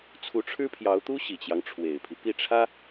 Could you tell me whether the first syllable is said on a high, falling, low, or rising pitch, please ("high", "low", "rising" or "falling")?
rising